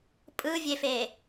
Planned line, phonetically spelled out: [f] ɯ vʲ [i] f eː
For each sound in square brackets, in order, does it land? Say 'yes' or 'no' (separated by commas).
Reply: no, no